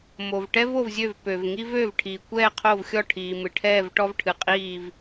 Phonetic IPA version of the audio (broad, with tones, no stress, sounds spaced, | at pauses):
m o˩ v ʈ ɛ˥ v o˥˨ v zʲ ø˥˨ v p ø˩ v ŋ i˥ v ø˥˨ v ʈʰ i˩ kʷ ɛː˥˨ qʰ o˥˨ v xʲ ɔ˥˨ ʈʰ iː˩ m ɨ˩ ʈʰ ɛː˥˨ v ʈ ɔ˥ v ʈʰ ɨ˩ qʼ iː˥˨ v